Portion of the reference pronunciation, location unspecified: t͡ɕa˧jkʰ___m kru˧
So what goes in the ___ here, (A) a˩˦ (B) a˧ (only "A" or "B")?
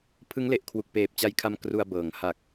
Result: B